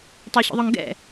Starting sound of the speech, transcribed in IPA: tˤ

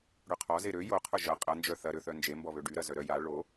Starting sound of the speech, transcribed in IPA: ɽ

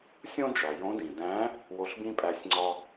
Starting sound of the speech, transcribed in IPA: sʲ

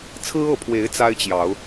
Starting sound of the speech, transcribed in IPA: t͡sʰ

